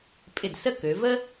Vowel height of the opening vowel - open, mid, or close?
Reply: close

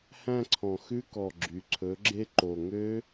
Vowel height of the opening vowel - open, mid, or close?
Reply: open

